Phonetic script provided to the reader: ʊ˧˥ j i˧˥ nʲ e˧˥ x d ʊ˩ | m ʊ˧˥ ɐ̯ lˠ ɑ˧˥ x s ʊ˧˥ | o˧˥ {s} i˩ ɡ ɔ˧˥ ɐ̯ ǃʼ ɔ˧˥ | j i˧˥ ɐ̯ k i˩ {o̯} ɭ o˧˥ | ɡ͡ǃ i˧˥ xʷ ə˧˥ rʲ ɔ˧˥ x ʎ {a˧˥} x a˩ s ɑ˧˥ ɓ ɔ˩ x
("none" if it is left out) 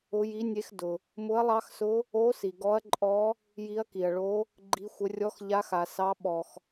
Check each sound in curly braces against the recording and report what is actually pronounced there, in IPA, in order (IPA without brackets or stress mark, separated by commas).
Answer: s, ɐ̯, a˧˥